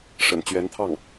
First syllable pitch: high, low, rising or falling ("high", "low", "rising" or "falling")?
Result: low